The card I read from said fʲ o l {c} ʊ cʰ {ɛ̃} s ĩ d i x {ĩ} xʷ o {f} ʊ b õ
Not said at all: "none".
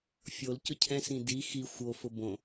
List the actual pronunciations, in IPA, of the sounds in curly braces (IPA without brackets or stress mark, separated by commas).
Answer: c, ɛ̃, i, f